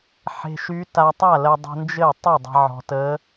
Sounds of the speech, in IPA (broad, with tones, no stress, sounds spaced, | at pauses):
ħ e̤˧ ʃ y˧˥ t a˧ tˤ a˥˩ l ɜ˧ dˤ ə̤˧ n d͡ʒ ɘ˥˩ tˤ y˥˩ dˤ ə̤˧ ʕ ɔ̤˧ t ə˧˥